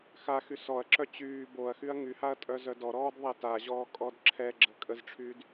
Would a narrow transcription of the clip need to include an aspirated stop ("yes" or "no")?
yes